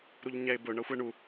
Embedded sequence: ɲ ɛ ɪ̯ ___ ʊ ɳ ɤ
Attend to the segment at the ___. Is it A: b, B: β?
A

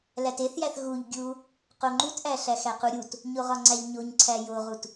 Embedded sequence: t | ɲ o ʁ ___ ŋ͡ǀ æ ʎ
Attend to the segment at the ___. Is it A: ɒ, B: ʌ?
A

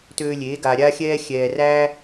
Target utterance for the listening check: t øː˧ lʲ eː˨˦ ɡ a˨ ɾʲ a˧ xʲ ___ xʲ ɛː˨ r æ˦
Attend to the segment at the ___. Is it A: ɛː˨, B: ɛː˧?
B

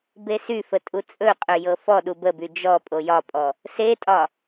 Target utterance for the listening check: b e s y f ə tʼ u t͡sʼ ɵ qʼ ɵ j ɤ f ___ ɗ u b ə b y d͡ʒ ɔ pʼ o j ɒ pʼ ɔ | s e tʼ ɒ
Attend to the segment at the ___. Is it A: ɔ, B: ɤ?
A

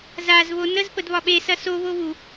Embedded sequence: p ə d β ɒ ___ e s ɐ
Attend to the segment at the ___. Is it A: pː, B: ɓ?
B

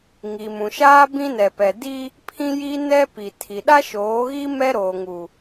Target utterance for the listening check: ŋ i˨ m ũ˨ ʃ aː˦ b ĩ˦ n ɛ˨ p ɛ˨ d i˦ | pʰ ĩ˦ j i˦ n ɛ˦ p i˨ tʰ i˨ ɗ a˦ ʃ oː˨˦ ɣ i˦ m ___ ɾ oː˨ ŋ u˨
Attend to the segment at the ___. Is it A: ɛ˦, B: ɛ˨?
A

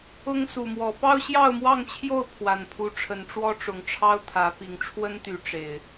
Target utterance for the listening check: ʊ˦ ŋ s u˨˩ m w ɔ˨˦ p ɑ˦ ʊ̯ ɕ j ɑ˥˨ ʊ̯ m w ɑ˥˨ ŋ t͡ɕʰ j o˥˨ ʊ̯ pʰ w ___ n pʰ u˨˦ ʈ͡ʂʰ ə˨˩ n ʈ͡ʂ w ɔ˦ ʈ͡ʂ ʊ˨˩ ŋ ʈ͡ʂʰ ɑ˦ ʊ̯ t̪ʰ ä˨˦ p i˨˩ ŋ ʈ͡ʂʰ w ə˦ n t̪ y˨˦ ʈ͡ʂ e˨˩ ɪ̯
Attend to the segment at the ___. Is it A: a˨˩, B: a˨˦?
A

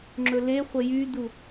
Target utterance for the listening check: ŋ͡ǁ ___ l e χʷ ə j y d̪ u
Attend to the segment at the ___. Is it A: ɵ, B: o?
A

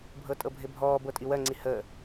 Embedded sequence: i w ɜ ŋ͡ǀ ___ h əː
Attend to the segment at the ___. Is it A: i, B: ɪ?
A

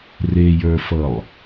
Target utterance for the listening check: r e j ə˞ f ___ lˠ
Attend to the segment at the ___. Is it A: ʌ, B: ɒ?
A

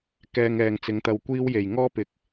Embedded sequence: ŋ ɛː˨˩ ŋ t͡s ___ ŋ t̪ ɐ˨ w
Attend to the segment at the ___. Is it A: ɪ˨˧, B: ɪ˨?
A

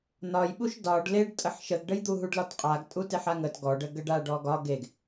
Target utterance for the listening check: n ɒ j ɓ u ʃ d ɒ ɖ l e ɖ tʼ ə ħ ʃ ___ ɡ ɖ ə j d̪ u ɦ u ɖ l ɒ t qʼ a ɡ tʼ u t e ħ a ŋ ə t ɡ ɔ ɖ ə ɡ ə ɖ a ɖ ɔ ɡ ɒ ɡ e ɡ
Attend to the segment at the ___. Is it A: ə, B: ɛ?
A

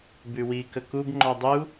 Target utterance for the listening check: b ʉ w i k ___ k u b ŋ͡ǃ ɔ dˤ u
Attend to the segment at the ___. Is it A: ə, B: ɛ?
A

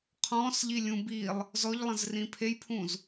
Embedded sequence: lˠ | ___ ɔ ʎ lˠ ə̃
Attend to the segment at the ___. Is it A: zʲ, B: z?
B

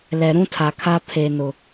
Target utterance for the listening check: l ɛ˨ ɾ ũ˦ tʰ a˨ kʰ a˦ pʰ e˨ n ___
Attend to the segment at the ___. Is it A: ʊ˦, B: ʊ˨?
B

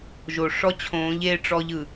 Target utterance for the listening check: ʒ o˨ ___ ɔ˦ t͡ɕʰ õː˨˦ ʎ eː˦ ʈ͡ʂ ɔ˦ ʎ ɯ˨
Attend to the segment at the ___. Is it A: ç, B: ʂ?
B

